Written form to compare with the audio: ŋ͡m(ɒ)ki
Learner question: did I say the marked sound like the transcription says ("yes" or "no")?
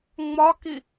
yes